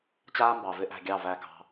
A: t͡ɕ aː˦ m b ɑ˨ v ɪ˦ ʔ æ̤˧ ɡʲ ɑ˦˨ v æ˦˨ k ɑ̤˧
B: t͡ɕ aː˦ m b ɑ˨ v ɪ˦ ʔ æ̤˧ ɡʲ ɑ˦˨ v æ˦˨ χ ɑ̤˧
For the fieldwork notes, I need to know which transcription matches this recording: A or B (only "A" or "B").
A